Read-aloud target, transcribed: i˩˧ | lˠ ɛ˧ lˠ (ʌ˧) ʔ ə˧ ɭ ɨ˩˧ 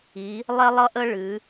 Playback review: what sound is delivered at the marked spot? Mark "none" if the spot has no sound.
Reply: ʌ˧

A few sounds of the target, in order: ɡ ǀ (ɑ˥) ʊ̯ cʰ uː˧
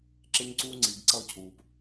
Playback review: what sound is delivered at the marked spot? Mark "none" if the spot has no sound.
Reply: ʌ˥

